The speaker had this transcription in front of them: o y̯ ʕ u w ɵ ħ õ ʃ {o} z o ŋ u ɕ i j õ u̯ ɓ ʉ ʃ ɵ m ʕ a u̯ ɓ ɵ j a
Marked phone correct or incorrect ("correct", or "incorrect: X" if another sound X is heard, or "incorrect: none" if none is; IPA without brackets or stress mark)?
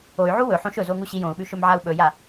incorrect: ɵ